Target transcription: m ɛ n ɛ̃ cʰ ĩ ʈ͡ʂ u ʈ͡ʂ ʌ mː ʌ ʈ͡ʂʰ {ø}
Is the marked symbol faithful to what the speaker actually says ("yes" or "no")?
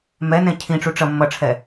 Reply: no